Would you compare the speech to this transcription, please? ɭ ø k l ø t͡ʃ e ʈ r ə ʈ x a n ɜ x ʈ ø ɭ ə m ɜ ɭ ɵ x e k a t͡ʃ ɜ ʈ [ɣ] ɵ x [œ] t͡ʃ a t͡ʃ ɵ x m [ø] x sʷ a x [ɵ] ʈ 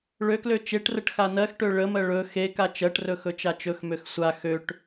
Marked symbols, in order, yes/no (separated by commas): no, no, yes, no